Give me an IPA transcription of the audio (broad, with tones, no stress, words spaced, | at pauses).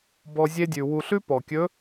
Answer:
bɔ˧ zʲe˥dʲʉ˩wu˧ ɬʉ˥pɔ˩kʲɵ˧˥